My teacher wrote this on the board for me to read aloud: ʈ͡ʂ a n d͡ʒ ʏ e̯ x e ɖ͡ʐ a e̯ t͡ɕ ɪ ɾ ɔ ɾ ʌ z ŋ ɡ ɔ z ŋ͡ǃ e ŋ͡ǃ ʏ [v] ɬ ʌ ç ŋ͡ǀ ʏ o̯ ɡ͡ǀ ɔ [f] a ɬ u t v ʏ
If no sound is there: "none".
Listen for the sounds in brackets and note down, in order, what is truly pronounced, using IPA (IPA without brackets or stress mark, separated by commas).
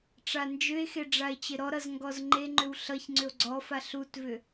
w, f